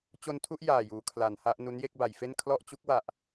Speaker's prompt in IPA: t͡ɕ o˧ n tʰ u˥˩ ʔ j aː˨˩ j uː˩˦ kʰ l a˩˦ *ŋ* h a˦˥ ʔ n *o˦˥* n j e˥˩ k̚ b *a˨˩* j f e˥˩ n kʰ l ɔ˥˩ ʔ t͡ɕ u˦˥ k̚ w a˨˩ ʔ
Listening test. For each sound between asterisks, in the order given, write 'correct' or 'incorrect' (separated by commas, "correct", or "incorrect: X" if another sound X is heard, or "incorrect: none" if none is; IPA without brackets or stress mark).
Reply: incorrect: n, incorrect: u˦˥, incorrect: a˩˦